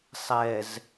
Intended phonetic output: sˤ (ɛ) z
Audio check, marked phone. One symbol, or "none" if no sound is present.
ɛ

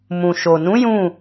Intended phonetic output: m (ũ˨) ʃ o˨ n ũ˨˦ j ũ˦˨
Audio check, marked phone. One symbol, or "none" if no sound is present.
ũ˨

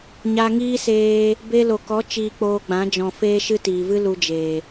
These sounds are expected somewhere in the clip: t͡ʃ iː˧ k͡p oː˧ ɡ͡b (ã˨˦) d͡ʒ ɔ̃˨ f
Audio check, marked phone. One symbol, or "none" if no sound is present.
ã˨˦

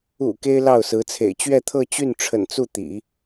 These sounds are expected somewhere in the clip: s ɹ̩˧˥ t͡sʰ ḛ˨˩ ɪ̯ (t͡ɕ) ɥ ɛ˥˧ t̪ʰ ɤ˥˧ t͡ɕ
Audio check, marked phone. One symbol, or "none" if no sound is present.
t͡ɕ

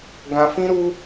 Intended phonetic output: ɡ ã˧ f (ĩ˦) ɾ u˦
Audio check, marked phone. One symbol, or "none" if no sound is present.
ĩ˦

